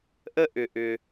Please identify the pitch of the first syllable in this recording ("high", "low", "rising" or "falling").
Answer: high